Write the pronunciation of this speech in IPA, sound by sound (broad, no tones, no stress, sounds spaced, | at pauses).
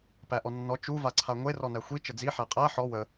p æ ʔ ɔ nː ɔ t͡ʃ u v a ǀʰ a ŋʷ e r ɔ n æ xʷ i t͡ʃ ə d͡z i ħ æ qʼ æ ħ ɔ w ə